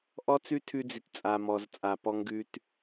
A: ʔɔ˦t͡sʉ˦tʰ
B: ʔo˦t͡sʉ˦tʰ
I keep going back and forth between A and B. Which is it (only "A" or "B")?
A